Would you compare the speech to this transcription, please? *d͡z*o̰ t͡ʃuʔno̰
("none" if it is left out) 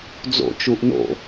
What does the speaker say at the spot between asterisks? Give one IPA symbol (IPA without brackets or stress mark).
d͡z